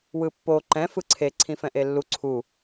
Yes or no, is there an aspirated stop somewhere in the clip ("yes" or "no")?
yes